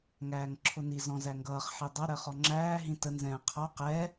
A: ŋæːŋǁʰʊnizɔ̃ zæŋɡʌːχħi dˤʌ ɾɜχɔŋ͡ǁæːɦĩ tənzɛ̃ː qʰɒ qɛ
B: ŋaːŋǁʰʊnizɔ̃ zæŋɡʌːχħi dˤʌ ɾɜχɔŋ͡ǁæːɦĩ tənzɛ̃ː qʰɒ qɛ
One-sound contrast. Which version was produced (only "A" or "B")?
A